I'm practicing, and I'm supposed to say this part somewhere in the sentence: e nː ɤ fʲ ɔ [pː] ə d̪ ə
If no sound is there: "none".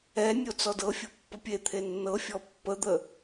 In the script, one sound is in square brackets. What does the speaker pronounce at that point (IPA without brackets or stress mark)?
pː